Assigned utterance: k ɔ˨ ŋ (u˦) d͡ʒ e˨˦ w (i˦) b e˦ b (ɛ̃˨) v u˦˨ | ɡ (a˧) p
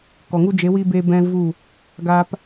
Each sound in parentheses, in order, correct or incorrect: correct, correct, incorrect, incorrect

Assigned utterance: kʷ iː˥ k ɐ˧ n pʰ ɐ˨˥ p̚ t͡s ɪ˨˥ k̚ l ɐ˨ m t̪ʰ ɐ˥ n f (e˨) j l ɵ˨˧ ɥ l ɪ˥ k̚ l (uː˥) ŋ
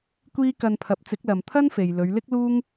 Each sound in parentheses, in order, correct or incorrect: correct, correct

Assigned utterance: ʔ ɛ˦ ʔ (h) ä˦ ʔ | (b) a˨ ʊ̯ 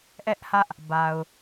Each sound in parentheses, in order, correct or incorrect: correct, correct

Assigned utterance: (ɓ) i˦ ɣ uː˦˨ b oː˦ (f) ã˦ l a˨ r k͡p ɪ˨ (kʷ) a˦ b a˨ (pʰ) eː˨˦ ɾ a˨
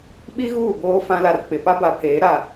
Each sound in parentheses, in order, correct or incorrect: correct, correct, incorrect, correct

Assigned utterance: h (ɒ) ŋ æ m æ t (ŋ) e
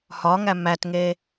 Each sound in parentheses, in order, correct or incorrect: correct, correct

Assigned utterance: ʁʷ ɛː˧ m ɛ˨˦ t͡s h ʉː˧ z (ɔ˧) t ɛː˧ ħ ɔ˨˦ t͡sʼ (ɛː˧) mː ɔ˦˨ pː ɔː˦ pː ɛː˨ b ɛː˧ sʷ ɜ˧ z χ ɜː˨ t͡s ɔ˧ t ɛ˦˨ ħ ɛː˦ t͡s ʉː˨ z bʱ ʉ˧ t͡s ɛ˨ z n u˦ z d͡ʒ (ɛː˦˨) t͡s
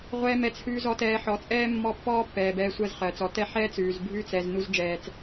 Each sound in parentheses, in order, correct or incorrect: correct, incorrect, incorrect

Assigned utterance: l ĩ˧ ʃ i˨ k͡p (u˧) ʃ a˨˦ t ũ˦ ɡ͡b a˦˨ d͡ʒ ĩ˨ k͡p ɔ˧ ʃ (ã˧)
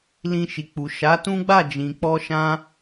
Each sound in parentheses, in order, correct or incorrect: incorrect, correct

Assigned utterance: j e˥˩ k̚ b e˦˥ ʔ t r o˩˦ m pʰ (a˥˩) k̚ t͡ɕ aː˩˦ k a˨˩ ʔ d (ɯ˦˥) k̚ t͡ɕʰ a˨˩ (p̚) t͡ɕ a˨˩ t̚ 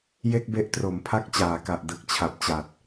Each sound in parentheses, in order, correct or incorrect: correct, correct, correct

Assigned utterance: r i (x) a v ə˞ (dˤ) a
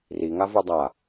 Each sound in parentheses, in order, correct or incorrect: incorrect, correct

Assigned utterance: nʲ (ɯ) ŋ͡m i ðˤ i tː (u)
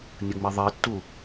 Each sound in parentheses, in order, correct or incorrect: incorrect, correct

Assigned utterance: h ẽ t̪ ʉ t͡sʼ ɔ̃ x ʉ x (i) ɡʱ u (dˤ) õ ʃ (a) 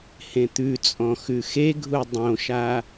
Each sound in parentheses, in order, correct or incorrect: incorrect, correct, correct

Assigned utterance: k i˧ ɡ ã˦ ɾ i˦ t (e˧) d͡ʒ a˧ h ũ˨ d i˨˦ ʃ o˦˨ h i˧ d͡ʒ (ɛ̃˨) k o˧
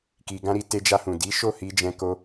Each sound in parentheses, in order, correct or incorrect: correct, incorrect

